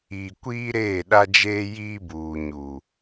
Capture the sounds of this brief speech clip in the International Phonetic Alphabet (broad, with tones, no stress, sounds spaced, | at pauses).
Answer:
i˨ kʷ iː˦ ɾ eː˦˨ ɗ a˦ d͡ʒ eː˦ j iː˦ b uː˨ ɲ u˨